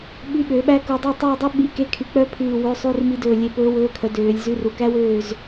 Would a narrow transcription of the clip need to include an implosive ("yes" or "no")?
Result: yes